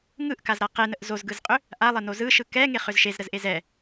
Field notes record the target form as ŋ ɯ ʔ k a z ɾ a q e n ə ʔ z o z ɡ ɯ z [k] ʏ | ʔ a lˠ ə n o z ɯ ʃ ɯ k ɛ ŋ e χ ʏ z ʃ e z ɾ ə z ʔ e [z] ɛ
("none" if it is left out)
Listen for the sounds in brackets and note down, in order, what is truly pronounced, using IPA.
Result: qʼ, z

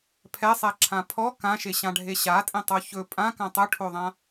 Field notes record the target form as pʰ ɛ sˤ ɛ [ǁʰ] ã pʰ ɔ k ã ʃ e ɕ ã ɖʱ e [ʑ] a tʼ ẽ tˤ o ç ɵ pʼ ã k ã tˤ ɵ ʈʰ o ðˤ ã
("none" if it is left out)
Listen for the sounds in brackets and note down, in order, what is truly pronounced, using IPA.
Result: ǁʰ, ɕ

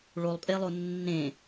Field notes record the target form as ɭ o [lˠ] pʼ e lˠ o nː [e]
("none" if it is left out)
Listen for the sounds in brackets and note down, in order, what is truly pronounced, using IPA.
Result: lˠ, ẽ

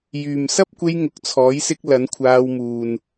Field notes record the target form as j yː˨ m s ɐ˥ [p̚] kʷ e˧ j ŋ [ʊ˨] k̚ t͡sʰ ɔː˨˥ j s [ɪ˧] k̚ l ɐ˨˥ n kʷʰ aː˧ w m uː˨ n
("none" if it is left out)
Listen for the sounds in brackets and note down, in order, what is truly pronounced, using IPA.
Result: p̚, ʊ˨, ɪ˧

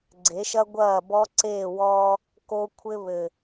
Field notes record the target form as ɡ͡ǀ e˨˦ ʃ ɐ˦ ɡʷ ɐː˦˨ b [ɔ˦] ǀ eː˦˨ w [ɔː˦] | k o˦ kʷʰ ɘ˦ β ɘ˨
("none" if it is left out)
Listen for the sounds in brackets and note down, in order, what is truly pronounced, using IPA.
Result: ɔ˦, ɔː˦

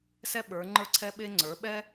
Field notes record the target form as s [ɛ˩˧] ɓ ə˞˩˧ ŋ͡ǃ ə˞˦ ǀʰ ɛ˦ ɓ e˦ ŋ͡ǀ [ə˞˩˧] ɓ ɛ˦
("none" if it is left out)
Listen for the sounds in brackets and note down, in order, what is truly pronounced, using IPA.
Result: ɛ˦, ə˞˩˧

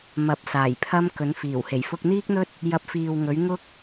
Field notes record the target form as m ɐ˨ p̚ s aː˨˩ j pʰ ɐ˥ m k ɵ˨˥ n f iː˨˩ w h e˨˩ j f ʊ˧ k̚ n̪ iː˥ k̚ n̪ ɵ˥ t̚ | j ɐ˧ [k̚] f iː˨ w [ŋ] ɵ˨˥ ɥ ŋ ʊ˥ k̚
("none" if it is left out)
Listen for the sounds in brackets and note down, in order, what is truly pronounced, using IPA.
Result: p̚, ŋ

